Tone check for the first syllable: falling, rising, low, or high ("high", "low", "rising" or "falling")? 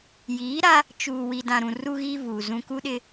rising